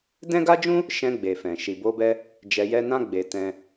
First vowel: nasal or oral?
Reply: nasal